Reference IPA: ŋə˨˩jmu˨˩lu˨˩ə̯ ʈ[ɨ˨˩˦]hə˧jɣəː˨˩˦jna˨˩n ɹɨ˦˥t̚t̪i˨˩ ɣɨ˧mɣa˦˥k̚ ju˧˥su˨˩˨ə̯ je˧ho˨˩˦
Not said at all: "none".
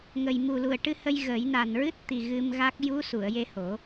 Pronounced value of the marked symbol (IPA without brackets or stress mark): ɨ˧